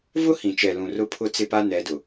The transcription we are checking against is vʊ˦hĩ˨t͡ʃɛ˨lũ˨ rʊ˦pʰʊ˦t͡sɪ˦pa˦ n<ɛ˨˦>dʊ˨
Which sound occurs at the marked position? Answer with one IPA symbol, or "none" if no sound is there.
ɛ˨˦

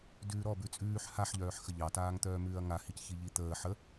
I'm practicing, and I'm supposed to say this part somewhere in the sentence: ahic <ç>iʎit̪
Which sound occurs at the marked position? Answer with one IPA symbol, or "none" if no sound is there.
ç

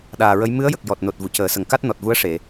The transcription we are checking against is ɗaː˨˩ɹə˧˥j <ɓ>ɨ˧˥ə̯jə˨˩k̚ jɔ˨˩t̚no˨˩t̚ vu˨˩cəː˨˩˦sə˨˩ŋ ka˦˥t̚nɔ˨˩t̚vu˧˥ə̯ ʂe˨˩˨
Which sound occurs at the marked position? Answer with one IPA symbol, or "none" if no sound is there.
m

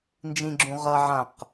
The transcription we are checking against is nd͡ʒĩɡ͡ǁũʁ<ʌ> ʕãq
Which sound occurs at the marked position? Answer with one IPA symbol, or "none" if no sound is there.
ʌ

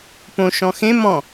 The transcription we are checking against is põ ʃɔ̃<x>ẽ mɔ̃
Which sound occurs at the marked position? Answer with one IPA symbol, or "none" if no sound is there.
x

